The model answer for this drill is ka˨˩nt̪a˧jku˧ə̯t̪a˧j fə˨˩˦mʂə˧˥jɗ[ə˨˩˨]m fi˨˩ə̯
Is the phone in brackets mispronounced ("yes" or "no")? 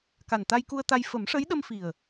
yes